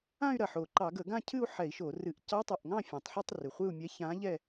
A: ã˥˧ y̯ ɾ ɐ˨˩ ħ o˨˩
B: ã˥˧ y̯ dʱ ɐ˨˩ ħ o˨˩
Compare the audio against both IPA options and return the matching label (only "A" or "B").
A